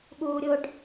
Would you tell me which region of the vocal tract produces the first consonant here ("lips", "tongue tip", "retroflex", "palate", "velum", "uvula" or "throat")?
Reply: velum